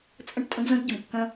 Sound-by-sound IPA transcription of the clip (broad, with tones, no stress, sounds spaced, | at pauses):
t͡sʼ ə̃˦ ʈ tʼ ə̃˦ ɡ z ə̃˦ ɡ ɟ ə˨ m kː ə̃˦